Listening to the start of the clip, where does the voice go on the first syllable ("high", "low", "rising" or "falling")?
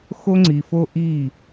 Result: high